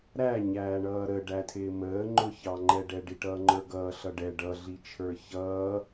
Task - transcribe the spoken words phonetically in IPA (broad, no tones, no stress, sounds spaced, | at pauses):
ɾ æ ɲ æː ɳ ʌː ɾ ə ɖ æ tʰ ɪː m əː ŋ͡ǃ ʊ ç ɑ ŋ͡ǃ ɛ ɖ ɛ ɖ i ʈ ʌː ŋ͡ǃ ə˞ ɡ ʌː ɬ ʌ ɖ ɛ ɖ ʌ ɮ i t͡ʃʰ ə˞ ç ʌː